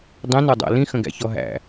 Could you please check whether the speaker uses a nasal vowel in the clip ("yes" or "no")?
yes